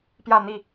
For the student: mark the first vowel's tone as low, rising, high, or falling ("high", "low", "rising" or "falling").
falling